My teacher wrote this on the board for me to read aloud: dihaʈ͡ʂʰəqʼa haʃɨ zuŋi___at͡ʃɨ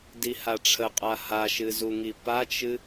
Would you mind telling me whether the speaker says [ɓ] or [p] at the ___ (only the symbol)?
p